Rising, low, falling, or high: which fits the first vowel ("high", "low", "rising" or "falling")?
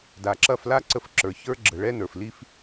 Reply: low